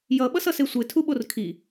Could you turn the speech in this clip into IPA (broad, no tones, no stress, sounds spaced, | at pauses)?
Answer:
j ʌ ɓ ʌ s ʌ s e sʷ e tʰ u ɓ o r kʰ i